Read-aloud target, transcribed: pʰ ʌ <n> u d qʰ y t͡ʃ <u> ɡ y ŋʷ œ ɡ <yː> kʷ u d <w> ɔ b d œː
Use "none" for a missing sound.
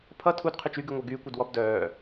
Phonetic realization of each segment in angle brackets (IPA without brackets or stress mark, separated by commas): tʰ, y, yː, w